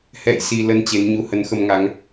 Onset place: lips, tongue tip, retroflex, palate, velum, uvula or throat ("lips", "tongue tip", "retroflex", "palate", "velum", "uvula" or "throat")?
throat